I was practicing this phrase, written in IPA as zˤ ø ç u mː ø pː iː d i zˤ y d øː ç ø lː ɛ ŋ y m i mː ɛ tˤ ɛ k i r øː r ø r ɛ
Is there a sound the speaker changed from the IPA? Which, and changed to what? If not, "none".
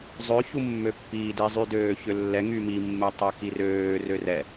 none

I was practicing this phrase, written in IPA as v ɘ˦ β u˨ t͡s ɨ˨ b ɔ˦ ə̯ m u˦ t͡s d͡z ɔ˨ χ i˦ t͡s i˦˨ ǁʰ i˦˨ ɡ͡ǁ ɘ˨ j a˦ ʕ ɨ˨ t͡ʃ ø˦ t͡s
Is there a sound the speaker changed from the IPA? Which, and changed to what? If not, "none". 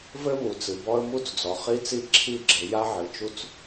ø˦ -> u˦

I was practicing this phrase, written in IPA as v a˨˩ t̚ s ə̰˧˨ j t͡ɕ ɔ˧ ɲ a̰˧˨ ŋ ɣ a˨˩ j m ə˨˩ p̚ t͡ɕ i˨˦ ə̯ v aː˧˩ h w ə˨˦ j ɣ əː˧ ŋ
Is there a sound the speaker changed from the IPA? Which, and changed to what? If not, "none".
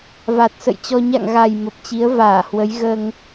none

